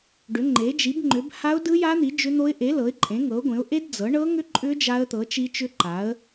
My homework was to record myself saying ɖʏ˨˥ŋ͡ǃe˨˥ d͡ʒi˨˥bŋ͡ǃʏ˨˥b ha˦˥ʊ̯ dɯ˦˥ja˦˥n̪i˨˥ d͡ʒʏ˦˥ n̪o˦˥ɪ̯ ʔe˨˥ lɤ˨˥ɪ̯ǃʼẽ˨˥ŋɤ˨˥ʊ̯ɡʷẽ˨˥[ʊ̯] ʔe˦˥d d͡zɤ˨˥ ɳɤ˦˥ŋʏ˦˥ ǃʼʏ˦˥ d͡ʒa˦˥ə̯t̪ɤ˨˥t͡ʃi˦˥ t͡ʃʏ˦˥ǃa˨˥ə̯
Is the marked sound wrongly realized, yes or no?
no